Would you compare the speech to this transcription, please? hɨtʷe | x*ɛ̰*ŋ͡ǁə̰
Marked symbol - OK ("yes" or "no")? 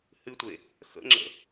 no